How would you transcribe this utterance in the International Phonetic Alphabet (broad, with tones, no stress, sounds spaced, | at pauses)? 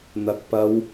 n̪ ɐ˨˥ k̚ p ɐ˨˧ w